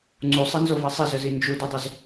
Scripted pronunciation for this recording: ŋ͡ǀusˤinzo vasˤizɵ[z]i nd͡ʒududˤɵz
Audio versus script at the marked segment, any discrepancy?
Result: no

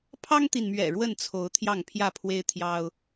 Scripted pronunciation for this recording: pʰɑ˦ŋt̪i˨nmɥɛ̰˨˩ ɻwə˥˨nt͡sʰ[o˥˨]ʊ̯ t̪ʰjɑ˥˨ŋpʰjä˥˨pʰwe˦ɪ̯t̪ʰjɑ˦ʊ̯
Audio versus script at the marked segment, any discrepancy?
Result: yes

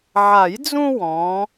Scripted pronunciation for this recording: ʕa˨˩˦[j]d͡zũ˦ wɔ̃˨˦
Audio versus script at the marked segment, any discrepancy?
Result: no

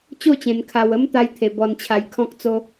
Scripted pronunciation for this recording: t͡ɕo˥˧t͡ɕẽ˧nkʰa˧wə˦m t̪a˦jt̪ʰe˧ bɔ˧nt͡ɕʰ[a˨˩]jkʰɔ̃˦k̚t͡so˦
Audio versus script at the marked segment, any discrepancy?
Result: yes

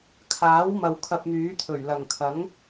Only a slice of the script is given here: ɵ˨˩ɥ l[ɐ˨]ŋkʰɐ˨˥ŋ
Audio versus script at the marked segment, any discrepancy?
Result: yes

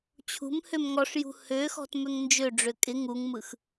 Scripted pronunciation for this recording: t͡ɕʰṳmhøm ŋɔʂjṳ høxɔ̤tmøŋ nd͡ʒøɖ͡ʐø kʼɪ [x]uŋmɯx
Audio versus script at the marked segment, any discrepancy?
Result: yes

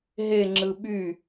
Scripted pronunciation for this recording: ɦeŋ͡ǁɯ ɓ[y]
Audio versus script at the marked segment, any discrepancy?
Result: no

